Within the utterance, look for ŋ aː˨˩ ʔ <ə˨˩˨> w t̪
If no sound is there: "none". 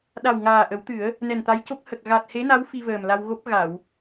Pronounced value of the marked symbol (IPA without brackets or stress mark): ə˨˩˦